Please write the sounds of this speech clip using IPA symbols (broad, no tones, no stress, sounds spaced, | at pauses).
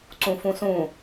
ǀ ũ f ũ s ũ